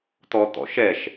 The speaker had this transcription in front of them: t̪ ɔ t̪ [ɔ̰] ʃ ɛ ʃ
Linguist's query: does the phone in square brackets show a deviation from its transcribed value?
no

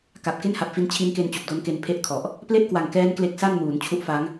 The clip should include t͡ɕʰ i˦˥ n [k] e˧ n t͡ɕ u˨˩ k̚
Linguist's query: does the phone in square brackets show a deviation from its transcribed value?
no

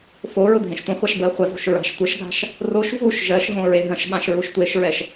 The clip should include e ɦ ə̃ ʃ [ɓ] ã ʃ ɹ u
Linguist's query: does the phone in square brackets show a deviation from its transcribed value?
no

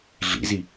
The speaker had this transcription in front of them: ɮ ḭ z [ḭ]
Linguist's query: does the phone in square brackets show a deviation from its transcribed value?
yes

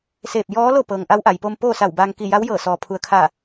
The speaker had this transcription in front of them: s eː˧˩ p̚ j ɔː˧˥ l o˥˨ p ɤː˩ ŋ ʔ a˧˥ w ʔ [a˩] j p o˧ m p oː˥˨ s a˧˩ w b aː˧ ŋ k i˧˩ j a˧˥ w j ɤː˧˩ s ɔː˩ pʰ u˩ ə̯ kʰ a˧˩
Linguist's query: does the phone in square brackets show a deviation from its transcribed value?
no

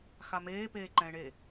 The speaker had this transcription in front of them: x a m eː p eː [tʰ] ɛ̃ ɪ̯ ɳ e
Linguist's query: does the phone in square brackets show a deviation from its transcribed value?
yes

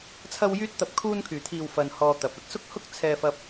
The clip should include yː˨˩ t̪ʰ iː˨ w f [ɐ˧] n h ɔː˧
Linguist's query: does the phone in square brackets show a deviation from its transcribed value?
no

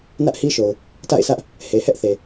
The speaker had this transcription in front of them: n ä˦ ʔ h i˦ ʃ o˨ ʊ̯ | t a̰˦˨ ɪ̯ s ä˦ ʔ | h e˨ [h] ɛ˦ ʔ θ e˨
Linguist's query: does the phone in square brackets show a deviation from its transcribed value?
no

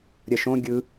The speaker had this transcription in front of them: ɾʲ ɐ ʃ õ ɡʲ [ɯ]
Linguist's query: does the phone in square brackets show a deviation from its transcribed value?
no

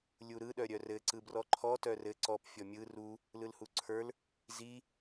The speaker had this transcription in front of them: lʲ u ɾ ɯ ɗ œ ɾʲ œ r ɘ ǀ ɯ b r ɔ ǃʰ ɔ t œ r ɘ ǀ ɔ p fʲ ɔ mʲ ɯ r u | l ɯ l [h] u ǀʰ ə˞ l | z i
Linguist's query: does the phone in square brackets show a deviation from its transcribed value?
no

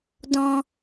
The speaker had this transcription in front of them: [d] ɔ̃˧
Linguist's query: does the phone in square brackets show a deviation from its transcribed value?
no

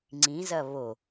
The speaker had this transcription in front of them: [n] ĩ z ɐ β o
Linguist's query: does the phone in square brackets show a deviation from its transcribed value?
yes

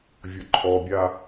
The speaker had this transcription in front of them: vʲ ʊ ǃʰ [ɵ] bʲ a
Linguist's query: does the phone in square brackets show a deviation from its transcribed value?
yes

